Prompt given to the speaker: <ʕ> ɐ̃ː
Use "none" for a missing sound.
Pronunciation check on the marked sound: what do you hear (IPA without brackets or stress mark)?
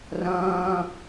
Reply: r